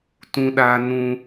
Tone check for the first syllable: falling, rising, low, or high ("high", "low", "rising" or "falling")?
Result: high